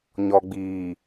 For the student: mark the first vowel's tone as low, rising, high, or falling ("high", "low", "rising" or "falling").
low